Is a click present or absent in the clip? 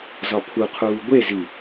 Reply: absent